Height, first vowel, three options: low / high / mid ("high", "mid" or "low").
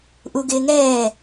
high